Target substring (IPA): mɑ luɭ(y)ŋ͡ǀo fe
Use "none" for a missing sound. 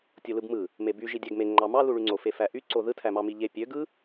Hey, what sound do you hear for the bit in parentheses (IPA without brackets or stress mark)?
y